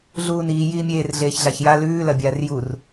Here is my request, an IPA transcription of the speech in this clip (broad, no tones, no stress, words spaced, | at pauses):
ɮuːniː jiːmʲeːr ɮeːçɮaçja lʉː lɐbʲaːrjur